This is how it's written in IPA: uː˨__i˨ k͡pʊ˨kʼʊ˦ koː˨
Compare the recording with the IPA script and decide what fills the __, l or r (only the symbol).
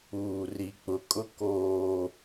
r